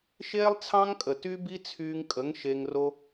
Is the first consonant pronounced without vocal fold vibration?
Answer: yes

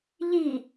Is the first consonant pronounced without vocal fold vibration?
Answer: no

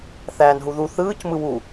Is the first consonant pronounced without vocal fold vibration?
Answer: yes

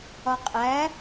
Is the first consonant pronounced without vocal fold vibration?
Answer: yes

